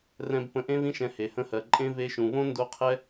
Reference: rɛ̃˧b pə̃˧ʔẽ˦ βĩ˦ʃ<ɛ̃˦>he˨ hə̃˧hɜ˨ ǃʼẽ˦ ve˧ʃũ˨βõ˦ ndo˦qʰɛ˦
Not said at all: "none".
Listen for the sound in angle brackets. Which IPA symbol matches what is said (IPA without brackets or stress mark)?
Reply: ɛ̃˧